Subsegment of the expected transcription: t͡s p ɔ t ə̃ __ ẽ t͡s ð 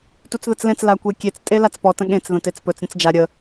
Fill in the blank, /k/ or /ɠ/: ɠ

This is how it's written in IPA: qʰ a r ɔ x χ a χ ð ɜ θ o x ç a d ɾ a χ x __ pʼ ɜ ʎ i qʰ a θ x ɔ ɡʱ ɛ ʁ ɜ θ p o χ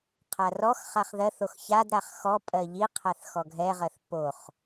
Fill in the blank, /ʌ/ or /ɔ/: ɔ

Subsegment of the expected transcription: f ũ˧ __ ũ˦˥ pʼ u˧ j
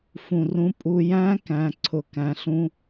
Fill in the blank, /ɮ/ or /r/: r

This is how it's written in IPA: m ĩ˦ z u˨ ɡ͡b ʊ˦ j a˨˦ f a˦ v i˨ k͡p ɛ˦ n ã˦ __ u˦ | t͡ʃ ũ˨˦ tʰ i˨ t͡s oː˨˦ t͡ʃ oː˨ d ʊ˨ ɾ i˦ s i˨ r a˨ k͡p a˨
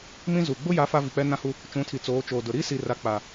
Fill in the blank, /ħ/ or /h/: h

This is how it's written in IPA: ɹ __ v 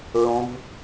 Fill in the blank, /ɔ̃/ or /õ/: õ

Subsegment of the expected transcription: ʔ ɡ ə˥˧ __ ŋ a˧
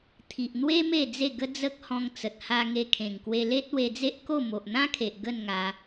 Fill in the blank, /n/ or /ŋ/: n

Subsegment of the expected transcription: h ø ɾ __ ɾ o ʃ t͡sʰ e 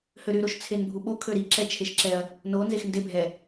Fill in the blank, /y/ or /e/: y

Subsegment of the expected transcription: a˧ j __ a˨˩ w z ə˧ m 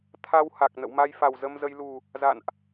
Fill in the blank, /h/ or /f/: f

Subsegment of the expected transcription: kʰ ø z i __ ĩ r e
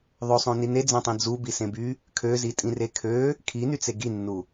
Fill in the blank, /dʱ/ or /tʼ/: tʼ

